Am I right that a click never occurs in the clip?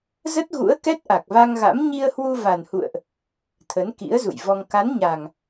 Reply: yes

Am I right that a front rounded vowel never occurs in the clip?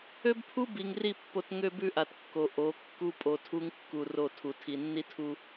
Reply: no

